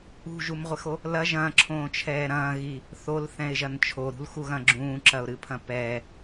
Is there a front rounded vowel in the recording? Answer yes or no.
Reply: no